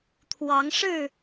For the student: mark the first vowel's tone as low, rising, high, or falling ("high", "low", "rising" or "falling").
rising